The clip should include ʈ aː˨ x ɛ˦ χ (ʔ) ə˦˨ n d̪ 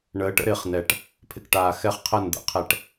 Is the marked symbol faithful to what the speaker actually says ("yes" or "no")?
no